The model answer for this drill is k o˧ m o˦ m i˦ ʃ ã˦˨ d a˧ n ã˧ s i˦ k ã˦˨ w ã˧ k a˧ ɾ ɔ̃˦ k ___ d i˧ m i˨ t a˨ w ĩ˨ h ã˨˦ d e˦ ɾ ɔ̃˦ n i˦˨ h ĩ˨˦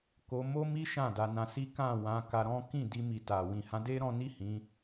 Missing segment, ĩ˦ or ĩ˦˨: ĩ˦˨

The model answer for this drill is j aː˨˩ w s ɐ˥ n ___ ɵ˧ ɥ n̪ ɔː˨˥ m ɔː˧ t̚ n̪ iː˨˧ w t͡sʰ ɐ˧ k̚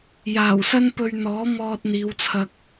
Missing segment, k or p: p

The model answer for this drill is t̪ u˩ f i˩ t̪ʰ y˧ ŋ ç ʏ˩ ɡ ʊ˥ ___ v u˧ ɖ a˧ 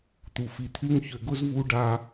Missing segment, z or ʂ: z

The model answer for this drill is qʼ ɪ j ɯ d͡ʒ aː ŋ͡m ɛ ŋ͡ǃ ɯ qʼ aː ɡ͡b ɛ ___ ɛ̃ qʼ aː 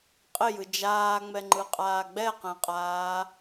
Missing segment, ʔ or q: q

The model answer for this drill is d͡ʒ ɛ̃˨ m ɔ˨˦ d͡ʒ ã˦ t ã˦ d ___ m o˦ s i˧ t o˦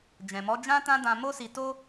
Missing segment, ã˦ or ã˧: ã˧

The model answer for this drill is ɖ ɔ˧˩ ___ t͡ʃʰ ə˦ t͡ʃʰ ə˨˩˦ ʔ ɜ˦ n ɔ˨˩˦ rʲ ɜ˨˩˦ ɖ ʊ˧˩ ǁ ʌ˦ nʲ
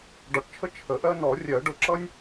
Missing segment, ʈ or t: ʈ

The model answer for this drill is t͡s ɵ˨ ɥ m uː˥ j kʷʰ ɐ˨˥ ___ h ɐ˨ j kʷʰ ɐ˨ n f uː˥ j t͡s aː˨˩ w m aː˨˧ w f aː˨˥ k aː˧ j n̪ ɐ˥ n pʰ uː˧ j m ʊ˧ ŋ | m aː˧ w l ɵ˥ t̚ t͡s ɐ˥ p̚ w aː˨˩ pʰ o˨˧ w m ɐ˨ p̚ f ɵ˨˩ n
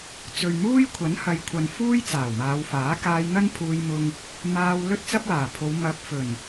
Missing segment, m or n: n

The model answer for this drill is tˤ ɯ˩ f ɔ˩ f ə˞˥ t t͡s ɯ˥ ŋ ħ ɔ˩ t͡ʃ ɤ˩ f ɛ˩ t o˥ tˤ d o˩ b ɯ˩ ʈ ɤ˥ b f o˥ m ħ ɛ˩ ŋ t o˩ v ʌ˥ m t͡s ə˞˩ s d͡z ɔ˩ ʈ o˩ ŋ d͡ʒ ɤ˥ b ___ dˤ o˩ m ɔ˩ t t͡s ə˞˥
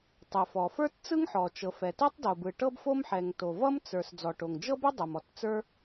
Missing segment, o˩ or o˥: o˥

